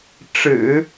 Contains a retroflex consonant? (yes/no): yes